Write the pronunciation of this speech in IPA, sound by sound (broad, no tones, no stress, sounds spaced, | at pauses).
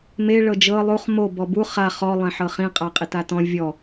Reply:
m e ɭ ɤ d͡ʒ ɤ lˠ u χ m o b ɔ b u χ a χ ɔ lˠ ẽ ħ ɤ χ ĩ qʼ a qʼ i t a t ɔ̃ vʲ ɔ